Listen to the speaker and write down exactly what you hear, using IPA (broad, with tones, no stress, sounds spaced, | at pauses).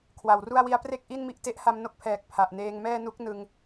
kʰ w a˨˩ w r u˥˩ a̯ w i˦˥ a̯ p r e˥˩ k̚ ʔ i˥˩ n m i˦˥ ʔ t e˦˥ ʔ h a˧ m n o˦˥ k̚ pʰ ɛː˨˩ k̚ pʰ a˨˩ ʔ n eː˧ ŋ m ɛː˥˩ n u˦˥ k̚ n ɯ˧ ŋ